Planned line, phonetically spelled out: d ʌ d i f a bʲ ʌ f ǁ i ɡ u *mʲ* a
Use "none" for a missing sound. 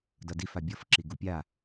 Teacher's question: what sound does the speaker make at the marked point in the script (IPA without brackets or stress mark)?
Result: pʲ